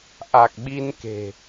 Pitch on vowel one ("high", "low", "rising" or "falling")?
low